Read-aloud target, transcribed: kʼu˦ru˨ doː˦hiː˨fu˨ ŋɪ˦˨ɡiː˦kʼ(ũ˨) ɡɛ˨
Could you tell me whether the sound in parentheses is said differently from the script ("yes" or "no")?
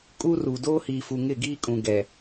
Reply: no